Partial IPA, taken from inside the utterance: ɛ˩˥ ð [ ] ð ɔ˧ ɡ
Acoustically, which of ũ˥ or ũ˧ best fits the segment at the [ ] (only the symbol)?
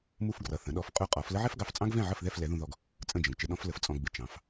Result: ũ˧